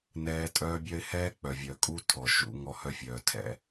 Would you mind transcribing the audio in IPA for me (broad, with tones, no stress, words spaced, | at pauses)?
nɛː˦ tʼœː˦bʲœ˦ɪ̯ hɛː˦k͡pœ˨vʲœ˨kʼu˦ tʰɔ˨ʃṵ˦ ŋɔ˦hœ˦fʲœː˨ tʰɛ̰˦